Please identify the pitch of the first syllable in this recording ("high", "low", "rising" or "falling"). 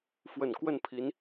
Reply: low